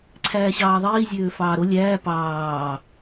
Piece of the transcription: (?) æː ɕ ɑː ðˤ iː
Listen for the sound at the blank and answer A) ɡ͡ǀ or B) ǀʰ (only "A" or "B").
B